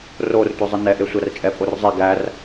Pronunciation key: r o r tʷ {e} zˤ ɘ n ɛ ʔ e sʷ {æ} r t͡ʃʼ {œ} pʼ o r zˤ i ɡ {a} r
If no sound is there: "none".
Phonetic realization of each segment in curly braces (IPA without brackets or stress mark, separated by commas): e, æ, ɛ, æ